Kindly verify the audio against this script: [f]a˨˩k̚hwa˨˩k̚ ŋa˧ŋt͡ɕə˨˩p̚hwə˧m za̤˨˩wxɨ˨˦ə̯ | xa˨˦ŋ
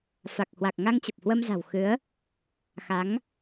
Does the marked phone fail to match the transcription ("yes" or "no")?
no